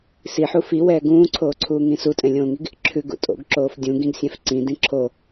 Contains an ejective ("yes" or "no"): yes